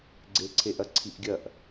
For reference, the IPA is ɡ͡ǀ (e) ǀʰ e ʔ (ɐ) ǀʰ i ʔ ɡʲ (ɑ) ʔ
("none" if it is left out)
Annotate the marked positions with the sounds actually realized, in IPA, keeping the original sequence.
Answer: e, ɐ, ɐ

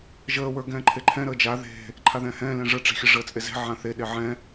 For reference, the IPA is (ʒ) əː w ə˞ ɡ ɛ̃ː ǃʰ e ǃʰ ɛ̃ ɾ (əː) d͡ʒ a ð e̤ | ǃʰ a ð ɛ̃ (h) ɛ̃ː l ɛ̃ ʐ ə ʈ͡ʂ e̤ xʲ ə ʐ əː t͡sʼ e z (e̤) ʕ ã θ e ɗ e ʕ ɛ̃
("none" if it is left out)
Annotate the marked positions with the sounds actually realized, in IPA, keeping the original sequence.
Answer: ʒ, əː, h, e̤

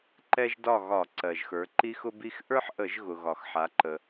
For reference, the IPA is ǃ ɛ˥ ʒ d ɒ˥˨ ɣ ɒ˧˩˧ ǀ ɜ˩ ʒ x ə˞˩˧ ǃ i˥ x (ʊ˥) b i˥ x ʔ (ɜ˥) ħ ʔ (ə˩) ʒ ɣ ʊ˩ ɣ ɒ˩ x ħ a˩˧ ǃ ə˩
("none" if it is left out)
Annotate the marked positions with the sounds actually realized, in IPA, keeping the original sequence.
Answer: ʊ˥, ə˞˥, ə˧˩˧

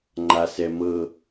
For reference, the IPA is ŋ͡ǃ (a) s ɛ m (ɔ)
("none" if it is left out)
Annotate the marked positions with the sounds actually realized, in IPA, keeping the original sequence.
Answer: a, ɤ

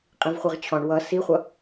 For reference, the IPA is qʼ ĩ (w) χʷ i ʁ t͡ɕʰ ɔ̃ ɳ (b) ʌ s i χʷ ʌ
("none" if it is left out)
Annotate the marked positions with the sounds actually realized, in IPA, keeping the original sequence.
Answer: v, w

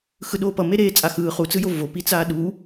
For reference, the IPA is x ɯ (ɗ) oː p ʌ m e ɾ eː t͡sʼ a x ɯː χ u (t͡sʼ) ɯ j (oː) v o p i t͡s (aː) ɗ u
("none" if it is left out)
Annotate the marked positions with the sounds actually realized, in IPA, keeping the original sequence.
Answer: ɗ, t͡s, o, aː

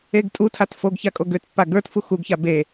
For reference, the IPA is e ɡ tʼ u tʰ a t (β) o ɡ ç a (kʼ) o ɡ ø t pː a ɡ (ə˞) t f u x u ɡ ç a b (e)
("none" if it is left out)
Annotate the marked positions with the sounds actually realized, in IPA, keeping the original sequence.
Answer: f, kʼ, ə˞, e

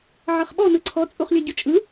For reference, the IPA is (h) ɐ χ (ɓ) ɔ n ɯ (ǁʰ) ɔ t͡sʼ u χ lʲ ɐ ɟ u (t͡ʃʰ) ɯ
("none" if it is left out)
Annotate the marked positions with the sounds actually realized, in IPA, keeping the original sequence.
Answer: ʕ, ɓ, ǀʰ, t͡ʃʼ

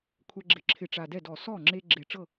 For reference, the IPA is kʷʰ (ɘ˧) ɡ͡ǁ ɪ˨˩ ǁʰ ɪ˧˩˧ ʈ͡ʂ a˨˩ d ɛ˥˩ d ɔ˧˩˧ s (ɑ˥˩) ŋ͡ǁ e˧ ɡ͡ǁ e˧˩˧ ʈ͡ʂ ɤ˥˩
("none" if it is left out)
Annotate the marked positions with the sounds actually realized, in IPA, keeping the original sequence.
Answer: ɛ˧, ɔ˥˩

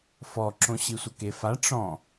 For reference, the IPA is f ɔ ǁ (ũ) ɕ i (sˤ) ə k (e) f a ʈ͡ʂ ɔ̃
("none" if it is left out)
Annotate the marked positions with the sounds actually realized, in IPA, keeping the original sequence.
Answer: õ, sʷ, e

